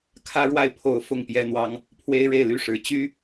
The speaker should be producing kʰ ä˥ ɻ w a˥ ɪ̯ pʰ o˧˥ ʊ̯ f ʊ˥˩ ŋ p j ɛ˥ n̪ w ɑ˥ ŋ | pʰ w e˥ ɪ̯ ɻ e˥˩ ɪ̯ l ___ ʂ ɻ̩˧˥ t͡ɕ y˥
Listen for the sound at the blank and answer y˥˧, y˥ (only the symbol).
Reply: y˥